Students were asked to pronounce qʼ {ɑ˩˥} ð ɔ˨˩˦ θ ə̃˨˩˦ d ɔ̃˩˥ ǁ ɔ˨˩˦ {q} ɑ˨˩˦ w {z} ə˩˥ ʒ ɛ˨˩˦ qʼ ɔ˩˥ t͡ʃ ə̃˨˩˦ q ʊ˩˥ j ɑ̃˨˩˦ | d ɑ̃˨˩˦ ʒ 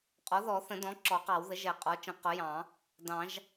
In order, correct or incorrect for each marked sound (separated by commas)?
incorrect, correct, incorrect